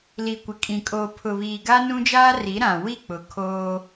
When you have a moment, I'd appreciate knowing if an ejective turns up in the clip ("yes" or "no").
yes